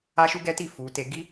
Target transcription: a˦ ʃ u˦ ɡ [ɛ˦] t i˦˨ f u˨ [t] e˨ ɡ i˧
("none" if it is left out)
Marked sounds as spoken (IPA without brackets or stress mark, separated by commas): ɛ˦, t